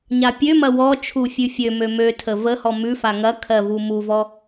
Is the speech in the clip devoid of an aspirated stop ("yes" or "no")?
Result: no